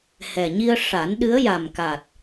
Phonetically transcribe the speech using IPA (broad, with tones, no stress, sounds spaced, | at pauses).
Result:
h ɛ˨˩ ɲ i˧ ə̯ ʂ a˨˩˦ n ɗ ɨ˧˥ ə̯ j a˨˩ m k a˨˩ t̚